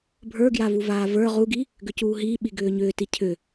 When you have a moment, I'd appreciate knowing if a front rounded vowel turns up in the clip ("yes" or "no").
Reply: yes